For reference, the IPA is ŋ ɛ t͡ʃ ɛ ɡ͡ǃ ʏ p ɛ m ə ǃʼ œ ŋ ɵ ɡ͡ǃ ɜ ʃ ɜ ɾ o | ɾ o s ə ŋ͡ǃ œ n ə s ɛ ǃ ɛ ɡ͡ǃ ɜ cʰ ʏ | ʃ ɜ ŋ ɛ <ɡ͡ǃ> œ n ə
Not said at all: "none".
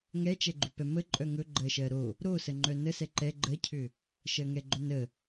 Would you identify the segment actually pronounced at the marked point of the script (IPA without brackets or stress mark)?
ɡ͡ǃ